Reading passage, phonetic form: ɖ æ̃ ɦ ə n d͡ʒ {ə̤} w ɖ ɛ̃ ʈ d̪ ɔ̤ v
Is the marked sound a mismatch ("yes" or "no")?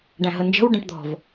no